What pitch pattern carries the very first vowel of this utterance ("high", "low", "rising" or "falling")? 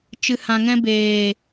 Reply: low